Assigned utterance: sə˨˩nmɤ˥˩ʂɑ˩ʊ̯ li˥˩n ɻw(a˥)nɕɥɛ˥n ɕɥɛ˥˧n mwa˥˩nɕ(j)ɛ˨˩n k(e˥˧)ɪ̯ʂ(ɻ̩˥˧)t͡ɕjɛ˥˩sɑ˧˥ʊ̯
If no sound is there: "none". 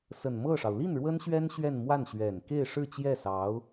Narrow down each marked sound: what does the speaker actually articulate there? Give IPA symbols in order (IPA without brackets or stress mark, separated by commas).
ə˥, ɥ, e˥˧, ɻ̩˥˧